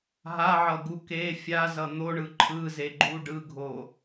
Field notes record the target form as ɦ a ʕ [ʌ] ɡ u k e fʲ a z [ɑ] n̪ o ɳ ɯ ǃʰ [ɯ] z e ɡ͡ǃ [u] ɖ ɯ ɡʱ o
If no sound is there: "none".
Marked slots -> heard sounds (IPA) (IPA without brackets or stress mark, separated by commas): ʌ, ʌ, ɯ, u